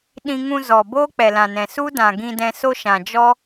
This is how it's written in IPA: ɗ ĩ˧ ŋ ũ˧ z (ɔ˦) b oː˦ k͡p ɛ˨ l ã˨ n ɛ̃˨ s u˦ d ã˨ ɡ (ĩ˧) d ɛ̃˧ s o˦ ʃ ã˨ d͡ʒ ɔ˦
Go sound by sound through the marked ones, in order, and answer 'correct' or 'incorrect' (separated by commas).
incorrect, correct